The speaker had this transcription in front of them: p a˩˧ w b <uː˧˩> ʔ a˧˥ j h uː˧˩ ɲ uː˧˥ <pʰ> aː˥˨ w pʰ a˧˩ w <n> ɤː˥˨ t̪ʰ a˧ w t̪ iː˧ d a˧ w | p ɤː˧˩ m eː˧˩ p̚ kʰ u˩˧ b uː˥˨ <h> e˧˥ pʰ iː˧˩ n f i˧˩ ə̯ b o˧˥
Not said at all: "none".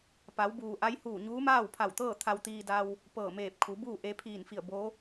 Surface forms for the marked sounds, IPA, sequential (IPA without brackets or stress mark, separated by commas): uː˩, m, t̪, ʔ